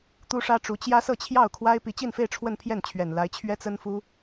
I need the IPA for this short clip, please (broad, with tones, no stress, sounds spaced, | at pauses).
t̪ u˥ ʂ ä˥ ʈ͡ʂ u˧˥ t͡ɕ j ä˥ s ɤ˥˧ t͡ɕʰ j ɑ˥˩ ʊ̯ kʰ w a˥ ɪ̯ p i˧˥ t͡ɕ i˥˧ n f e˥˧ ɪ̯ ʈ͡ʂʰ w ə˥˧ n pʰ j ɛ˥˩ n t͡ɕʰ ɥ ɛ˨˩ n l a˧˥ ɪ̯ t͡ɕʰ ɥ ɛ˥ t͡s ə˥ n f u˥